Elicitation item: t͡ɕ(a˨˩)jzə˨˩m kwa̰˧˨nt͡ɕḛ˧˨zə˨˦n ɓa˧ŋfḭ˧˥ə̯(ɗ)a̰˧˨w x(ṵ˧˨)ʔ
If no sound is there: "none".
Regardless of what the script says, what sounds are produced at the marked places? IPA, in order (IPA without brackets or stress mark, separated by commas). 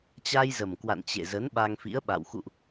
a˧, ɓ, ṵ˧˨